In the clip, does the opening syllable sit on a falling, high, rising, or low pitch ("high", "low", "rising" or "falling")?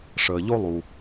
low